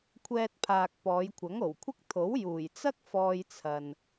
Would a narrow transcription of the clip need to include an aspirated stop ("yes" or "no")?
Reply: yes